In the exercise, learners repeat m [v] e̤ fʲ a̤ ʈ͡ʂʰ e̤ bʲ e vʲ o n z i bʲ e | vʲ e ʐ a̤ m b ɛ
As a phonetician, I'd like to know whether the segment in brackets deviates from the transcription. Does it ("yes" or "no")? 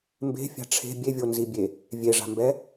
yes